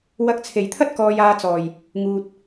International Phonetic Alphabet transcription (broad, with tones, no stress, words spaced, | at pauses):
wɐ˧k̚t͡sʰe˨jt̪ʰɐ˥t̚ kɔː˧jaː˧t͡sɔː˨j | ŋuː˧t̚